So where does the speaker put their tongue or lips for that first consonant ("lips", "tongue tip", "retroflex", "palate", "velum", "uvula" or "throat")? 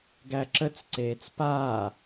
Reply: velum